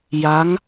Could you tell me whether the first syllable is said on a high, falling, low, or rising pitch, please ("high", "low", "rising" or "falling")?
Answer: rising